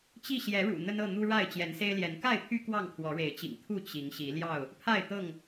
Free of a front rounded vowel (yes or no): no